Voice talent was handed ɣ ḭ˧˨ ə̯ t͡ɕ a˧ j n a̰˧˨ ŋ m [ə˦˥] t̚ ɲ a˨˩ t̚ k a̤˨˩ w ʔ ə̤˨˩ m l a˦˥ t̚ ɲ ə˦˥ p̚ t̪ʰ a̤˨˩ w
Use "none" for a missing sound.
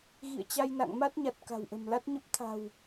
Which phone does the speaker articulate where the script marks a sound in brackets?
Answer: a˦˥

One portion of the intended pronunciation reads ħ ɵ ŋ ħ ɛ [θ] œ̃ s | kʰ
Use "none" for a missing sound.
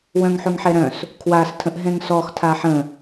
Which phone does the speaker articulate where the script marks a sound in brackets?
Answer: ɾ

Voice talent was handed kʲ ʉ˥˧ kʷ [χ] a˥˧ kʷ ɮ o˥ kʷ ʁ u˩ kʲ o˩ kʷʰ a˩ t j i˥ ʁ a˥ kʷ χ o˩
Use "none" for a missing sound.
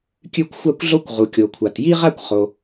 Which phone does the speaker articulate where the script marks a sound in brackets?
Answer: xʷ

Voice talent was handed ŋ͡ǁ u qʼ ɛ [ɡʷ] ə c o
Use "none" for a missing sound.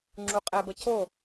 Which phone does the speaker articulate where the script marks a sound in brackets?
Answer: b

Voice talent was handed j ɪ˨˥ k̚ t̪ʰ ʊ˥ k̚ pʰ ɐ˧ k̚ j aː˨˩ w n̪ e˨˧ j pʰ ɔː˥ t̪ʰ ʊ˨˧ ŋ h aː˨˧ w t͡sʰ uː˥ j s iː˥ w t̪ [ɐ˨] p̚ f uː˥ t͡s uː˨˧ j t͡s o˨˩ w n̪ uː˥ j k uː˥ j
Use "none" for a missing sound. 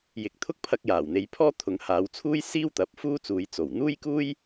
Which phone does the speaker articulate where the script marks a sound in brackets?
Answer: ɐ˨˥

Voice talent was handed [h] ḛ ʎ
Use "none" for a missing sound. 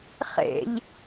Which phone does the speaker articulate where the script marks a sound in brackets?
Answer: χ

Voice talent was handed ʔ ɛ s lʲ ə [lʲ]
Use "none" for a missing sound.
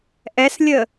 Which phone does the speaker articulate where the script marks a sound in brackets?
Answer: none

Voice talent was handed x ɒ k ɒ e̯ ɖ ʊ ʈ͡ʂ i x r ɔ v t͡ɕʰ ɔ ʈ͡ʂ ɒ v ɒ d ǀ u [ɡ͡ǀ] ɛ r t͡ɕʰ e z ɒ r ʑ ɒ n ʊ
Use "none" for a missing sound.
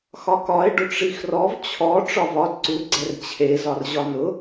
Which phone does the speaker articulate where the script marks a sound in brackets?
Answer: ɡ͡ǀ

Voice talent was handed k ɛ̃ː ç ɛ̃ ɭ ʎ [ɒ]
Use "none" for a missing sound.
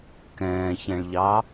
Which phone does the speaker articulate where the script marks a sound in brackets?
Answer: ɑ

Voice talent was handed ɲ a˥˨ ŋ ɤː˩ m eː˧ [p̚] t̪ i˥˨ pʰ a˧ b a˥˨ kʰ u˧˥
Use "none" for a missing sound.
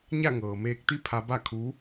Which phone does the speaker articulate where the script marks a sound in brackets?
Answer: k̚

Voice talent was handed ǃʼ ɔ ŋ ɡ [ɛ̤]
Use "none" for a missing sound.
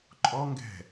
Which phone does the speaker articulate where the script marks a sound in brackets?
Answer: ɛ̤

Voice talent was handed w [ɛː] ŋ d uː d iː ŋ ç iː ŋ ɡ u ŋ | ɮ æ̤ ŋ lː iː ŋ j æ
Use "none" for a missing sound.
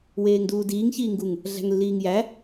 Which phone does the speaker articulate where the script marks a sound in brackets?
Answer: eː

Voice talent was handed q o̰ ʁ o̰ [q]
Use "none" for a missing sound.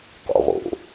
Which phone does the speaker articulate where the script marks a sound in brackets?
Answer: none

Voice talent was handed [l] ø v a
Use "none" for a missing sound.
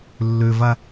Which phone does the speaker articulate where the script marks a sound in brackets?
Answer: lː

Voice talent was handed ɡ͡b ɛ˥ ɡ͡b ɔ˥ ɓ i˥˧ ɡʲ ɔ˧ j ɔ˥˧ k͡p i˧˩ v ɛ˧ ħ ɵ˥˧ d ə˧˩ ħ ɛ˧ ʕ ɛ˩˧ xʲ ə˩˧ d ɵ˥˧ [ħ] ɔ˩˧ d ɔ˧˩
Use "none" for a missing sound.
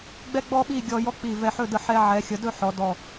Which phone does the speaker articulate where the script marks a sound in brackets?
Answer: ħ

